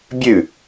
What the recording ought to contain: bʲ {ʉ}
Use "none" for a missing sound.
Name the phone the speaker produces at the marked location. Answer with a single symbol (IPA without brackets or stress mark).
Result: ʉ